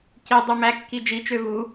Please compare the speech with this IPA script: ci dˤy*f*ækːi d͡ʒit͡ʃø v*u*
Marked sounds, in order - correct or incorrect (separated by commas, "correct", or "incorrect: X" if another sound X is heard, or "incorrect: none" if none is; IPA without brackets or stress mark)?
incorrect: m, correct